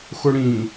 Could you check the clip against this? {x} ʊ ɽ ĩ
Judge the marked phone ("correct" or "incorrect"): correct